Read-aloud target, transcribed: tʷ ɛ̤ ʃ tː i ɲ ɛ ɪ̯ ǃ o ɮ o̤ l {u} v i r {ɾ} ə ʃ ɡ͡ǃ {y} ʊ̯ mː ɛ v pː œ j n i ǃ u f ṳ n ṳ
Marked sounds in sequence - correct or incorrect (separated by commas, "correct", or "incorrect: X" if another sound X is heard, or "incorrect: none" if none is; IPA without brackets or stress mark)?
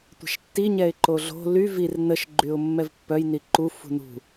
incorrect: y, incorrect: n, correct